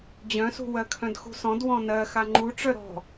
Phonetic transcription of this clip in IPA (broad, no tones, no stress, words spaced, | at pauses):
d͡ʑœ̃sṳ wɜkʰœ̃dxṳsɔ̃d wɔ̃nɜ xaŋ͡ǃu ʈ͡ʂœɾɔ̤